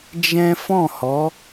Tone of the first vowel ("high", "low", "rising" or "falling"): high